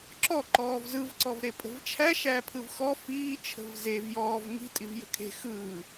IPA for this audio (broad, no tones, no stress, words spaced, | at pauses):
ǁɔ ǃɔːvzɯv ǀɔvɾepʼə̤vt͡ʃʰæ ʃæpʰɯvxɔ fiː t͡ʃʰə̤vzev jɔːv ŋi̤ tʼivjə̤kʰe̤ xɯː